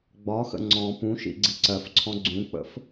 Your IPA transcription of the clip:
ɡ͡b ɒ x ə̰ ŋ͡ǀ ɔ̃ p ũ ʃ ḭ ɡ͡ǀ i ǀ ɜ f ǀʰ ɔ̃ ɡ͡ǀ ũ k͡p ə̰ f

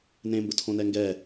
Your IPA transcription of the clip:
n ẽ m b ə̰ tʰ õ n ɛ ŋ ɡ ɛ

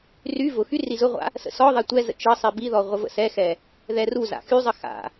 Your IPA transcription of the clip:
r y v ʊ x y r i z ʊ ʁʷ a̰ | s ə̰ s ɔ ðˤ ɛ tʷ ɛ z ə̰ t͡ʃ ə sˤ i b i ð ɔ ʁʷ ə v ə̰ s ɛ x ɛ | ð ɛ r u z a̰ x y zˤ ə x a̰

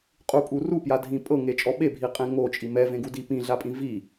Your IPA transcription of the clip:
qʼ u pʼ u r u p j a dʱ ĩ pʼ ɤ ŋ e t͡ʃʼ ɔ ɓ e bʱ i qʼ ẽ ŋ o t͡ʃʼ i m ɛ v ẽ ɡ u d i p ĩ ɮ a pʼ ĩ v i

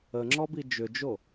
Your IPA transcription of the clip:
ə ŋ͡ǁ ɔ b i d͡ʒ ʏ d͡ʒ o

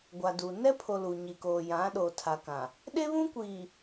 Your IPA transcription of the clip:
ɡʷ a˨ d u˨ n ɛ˦ pʰ o˨ l u˨ ɲ i˨ k oː˨ j ã˨˦ ɗ o˨ tʰ a˨ k ã˨ | ɗ e˦ β ũ˦ kʷ i˨

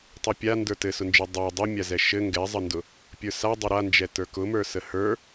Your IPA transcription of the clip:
tˤ u pʲ a n d ə˞ t ɘ s ʊ n d͡ʒ ə˞ dˤ a dˤ u mʲ a z ɛ ʃ ɘ ŋ ɡ ɛ zˤ ə n d ʊ | pʲ ə˞ s a dˤ ə ɾ a n d͡ʒ ɛ t ə˞ k ʊ m ə˞ s ə h ə˞

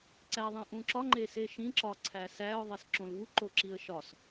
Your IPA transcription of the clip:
ǀ æ ðˤ ĩ ʔ ũ ǁ ɒ ŋ͡ǃ e s e ʃ ĩ ǁ ɒ ǀʰ æ s æ ʊ̯ ðˤ e s ǁ õ l v u ǃ o ǁ i ə̯ ʃ ɒ s

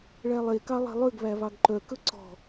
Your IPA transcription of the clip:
ɭ æ lˠ e k ɑ lˠ e̤ lˠ ø ɡ β æ β ɑ ɡ ǃ œ k ɵ ǀ ɔ̤

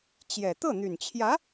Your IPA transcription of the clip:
t͡ɕ j ɛ˨˩ t̪ ɤ˥˩ n̪ y˨˩ n t͡ɕʰ j ä˧˥

